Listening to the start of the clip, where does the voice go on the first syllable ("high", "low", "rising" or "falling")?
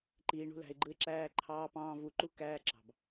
low